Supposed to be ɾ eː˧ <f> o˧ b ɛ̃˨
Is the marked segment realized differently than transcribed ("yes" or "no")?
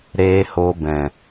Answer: yes